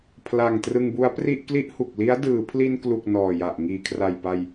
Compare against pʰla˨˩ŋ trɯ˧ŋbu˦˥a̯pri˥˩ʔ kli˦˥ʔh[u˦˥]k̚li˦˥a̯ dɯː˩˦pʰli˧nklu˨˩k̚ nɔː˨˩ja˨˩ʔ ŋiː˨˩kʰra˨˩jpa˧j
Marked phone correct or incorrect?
incorrect